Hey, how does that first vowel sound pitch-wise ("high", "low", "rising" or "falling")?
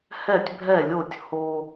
falling